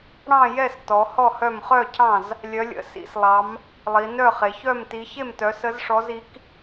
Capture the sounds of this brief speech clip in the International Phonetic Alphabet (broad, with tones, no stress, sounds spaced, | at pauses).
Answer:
ɽ ɑ̃˥˨ j ɛ˥˨ s t ɔ˨˦ h ɔ˥˨ h œ˥˨ m χ œ˥˨ cʰ ɑ̃˥˨ z | lʲ œ˨˦ lʲ ə̰˨˦ s ḭ˨˦ s lˠ ɑ˨˦ m | lˠ i˨˦ n œ˥˨ χ e˨˦ ç œ˥˨ m t i˨˦ ç e˥˨ m t œ˨˦ s ə˨˦ z ʂ ɔ˨˦ z i˨˦ k